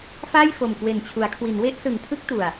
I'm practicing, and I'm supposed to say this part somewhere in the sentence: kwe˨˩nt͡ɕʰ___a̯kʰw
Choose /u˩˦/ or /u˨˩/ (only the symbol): u˩˦